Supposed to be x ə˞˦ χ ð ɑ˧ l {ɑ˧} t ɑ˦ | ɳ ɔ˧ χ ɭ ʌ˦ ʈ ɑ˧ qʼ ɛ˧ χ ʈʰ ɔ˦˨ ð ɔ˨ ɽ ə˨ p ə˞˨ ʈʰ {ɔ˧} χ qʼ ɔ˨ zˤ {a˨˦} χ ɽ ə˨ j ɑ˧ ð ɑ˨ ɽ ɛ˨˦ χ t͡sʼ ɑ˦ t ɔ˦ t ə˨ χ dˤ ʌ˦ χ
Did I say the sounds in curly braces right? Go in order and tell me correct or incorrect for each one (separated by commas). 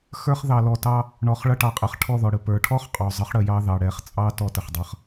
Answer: incorrect, incorrect, incorrect